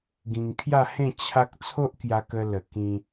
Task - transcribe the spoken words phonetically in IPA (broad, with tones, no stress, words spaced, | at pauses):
ɡĩ˧ŋkʰja˥˧hẽ˥˧ t͡ɕʰa˦k̚ t͡sʰo˦ʔkja˧kə˧lə˨˩ kĩ˧